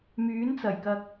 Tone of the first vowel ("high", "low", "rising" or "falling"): rising